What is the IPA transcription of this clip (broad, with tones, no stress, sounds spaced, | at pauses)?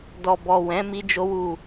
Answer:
d ɔ˨ b ɔ˨ w ɛ̃˨˦ m i˦ d͡ʒ o˦ w u˦˨